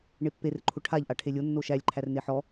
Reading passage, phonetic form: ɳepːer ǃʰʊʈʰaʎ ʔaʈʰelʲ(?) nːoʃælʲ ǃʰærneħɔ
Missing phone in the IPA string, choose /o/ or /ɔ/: o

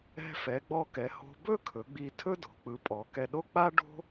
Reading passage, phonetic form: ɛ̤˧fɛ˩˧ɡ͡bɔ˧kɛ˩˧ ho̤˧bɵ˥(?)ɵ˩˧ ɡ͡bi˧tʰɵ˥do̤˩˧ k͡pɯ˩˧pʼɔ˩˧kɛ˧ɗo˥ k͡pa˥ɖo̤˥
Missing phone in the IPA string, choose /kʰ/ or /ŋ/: kʰ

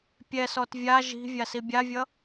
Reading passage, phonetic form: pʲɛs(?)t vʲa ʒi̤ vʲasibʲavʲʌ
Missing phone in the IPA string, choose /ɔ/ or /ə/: ɔ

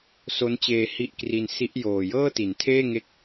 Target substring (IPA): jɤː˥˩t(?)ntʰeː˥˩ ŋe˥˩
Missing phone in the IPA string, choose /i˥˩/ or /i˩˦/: i˩˦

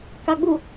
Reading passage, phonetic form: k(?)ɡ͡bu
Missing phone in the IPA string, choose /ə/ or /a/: a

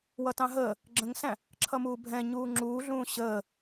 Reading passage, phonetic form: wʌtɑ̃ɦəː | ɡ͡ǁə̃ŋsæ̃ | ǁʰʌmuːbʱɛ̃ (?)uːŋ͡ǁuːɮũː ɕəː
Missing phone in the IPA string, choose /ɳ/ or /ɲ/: ɲ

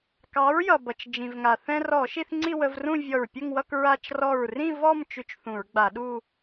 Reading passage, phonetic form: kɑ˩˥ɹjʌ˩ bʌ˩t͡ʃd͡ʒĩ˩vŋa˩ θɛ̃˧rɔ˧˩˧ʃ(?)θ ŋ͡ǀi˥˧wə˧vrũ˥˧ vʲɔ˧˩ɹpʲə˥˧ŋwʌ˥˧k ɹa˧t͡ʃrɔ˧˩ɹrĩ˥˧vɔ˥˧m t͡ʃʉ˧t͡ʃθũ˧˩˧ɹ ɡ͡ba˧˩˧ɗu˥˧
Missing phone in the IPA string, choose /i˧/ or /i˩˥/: i˧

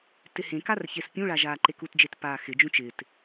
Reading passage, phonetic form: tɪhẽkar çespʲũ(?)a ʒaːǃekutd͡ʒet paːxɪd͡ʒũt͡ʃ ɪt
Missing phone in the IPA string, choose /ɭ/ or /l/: ɭ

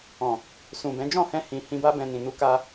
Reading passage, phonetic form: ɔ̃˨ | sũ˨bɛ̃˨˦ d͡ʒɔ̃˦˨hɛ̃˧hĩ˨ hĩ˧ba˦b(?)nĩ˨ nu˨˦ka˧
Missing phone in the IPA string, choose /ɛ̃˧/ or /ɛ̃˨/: ɛ̃˧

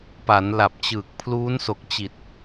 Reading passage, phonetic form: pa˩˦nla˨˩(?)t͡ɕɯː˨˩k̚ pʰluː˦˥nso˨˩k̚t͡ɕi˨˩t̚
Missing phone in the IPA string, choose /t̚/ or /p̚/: p̚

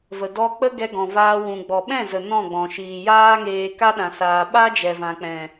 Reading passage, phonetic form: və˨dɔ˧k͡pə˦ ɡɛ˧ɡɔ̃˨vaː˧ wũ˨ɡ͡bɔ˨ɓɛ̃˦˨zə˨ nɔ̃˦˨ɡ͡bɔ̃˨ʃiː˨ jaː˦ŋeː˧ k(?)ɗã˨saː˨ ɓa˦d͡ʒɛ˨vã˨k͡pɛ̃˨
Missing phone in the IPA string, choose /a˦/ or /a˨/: a˦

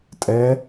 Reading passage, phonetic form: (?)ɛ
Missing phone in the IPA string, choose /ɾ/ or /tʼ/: tʼ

